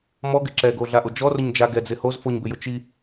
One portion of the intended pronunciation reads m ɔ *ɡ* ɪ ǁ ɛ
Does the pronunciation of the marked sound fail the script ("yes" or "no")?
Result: no